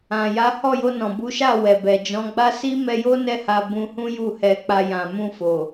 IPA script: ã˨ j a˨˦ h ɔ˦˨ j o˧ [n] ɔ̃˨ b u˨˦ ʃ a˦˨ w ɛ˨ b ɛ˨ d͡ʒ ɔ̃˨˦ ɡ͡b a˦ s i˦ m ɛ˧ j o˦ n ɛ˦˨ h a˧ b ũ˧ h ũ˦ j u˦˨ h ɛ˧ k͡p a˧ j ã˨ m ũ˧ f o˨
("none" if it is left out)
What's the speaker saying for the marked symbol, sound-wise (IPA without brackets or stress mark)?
n